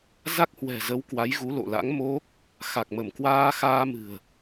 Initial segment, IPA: z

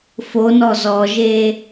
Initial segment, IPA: f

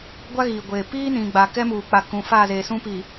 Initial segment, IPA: ɡʷ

